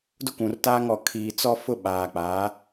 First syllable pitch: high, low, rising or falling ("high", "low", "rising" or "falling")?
high